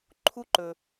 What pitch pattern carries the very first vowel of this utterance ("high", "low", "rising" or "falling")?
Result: high